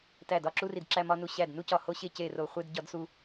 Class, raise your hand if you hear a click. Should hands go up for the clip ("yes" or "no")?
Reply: yes